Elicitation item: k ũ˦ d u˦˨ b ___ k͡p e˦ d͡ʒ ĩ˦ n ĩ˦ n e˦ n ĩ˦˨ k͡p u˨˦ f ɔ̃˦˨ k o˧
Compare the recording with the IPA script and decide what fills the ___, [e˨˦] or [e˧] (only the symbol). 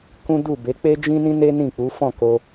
e˨˦